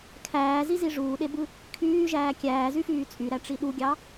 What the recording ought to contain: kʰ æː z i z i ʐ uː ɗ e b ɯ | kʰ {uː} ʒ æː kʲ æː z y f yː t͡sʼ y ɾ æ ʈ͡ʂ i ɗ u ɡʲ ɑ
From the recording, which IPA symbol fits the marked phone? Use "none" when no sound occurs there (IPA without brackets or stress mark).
yː